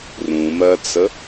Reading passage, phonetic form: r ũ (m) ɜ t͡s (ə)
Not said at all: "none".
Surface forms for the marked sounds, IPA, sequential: m, ə

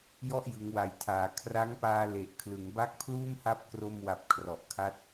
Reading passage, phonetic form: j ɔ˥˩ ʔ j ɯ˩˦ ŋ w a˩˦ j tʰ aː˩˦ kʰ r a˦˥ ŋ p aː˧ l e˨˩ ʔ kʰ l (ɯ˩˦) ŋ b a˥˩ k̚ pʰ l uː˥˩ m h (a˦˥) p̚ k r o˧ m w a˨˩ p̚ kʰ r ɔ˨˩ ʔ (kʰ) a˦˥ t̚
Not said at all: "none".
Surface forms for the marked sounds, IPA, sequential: ɯ˩˦, a˦˥, kʰ

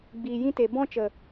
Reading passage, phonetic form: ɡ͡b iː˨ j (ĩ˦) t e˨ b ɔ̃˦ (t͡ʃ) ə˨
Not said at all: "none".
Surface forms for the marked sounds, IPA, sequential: ĩ˦, t͡ʃ

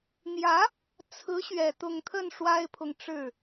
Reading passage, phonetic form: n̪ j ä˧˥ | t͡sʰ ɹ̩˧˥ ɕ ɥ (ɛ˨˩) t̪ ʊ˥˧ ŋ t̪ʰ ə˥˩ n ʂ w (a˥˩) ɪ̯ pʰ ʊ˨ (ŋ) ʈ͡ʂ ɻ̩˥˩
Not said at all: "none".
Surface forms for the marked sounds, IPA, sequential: ɛ˨˩, a˥, ŋ

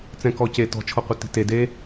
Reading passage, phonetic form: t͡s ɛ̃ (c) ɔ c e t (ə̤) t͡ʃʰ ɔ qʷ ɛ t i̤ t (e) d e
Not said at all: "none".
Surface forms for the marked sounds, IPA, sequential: k, ɔ̤, e

